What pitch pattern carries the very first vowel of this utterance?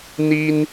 high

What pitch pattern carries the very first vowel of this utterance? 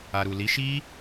low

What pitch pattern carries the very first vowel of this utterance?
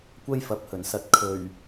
high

